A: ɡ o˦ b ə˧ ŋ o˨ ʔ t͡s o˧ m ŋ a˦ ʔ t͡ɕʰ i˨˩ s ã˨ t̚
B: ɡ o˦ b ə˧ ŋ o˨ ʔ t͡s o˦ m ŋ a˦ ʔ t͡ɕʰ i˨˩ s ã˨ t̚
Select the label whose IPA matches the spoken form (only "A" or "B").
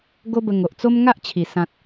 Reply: B